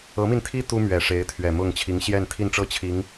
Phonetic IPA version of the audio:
ɤ˧˥mi˧nt̪ʰi˥ t̪u˥mɥɛ˨˩ ʂe˧˥ɪ̯t̪ʰɥɛ˨˩mʊ˥˩ŋ t͡ɕʰi˧˥ŋɕjɛ˥˧nt̪ʰi˥˧nʈ͡ʂɤ˥˩ t͡ɕʰi˧˥ŋ

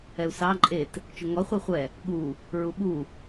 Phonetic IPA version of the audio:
ɛu̯sɑ ǃʼet | t͡ʃʊŋɔ χʷeχʷɛ | ɠu | ɹuɓu

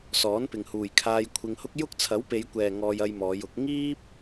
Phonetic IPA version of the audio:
sɔː˨˥npɪ˨ŋhuː˨jkʰaː˧j kʷʰɪ˧ŋhʊ˥k̚ jʊ˥k̚t͡sʰɐ˨˥w pe˨˧jkʷɛː˨ ŋɔː˧jɐ˧jmɔː˨˧jʊ˨˥k̚ ŋiː˥p̚

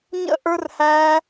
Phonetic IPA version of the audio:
ɲə̰˦ʔə˞˦rhæ˦

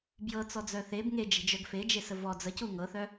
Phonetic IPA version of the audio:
bjɤt͡sɔd͡zœ θeb ŋed͡ʒe̤d͡ʒœɡ fed͡ʒesə vɔ d͡zəcu ŋɤθœ

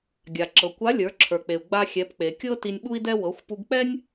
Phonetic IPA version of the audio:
ɡʲa˩ǁɤ˩kʷa˧˥ lʲə˞˩˧ǁʰə˞˩k͡pe˩u̯ ɡ͡ba˧xʲɛ˩˧p k͡pe˩kʲɤ˥ ti˧nʲɓu˥i̯dɛ˥ wɤ˩˧xʷpu˧ɡk͡pɛ˥nʲ

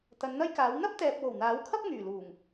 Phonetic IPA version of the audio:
t̪ɐ˨˧nn̪ɐ˥jkaː˨˥w n̪ɐ˥p̚t̪ɛː˨p̚ wo˨˩wn̪aː˨˥wkʰɐ˥p̚ ŋyː˨˩luː˨˩ŋ

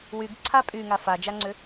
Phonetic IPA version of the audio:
wyɡǀʰa pʼyŋa fad͡ʒaŋ͡ǀʏ

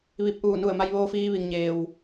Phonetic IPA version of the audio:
ʋi˧˩p̚ʔuː˧˩ nu˧˩ə̯ma˧j ʋoː˧fiː˧ʋi˩ŋ ɲeː˩w

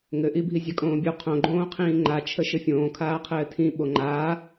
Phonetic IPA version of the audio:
ŋɘʔibʱi zʲakʼõːbʲu qʰõɡ͡ǃõːqʰĩː ŋ͡ǃat͡ʃʰə ʃɘfʲõːkʰaːqʰɘː tʰĩ ɓoŋ͡ǃaː

